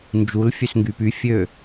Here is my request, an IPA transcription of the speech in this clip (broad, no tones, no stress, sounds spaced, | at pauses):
n d͡ʒ u l fʲ ø s ŋ ɡ y p y fʲ ø